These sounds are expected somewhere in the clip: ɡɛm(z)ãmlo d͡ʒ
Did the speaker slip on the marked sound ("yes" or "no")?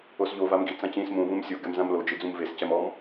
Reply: no